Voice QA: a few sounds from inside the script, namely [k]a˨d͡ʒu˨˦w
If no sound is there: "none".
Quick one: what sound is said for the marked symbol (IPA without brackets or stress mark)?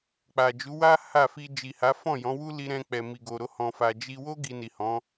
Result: k͡p